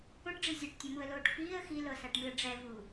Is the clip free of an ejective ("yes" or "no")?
yes